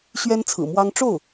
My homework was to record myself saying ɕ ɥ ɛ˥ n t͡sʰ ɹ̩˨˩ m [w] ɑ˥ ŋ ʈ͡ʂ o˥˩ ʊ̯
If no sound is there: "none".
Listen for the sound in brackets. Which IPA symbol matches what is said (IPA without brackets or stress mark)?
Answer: w